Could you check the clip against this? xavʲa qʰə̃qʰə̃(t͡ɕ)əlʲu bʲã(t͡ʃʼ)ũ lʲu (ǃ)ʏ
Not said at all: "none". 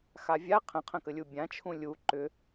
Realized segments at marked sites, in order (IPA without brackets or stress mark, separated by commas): k, t͡ʃʰ, ǃ